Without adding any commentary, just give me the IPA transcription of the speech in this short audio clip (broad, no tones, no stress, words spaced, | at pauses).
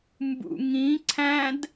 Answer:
mbṵŋĩ ǀʰæ̃d